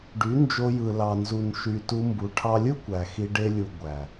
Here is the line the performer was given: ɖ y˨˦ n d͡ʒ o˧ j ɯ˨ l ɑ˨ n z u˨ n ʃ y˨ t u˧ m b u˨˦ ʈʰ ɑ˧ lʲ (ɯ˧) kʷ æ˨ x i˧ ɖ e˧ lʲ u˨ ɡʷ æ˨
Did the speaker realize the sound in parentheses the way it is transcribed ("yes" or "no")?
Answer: no